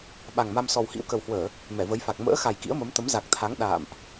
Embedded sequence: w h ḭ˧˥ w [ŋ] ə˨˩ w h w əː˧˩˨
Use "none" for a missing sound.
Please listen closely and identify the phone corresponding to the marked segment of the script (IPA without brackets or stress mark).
k